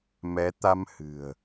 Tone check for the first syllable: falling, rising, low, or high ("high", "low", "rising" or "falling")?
rising